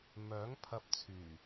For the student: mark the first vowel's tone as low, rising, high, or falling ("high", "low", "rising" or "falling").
rising